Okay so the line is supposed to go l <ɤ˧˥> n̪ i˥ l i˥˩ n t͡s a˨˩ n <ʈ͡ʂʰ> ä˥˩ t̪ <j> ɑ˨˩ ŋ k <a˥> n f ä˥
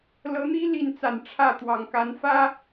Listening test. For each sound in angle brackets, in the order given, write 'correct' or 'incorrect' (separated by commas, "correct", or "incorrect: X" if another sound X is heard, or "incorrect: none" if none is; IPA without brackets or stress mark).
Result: correct, correct, incorrect: w, incorrect: a˧˥